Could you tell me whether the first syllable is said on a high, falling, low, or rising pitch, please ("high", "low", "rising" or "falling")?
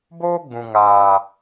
high